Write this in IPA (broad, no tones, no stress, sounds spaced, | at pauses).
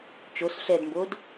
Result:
t͡ʃ o s ɬ ɛ d m b o d